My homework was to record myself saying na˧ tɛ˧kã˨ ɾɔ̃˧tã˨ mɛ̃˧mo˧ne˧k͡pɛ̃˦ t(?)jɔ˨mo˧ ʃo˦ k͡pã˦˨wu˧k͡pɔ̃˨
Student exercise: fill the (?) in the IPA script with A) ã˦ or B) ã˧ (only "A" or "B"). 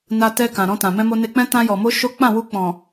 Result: B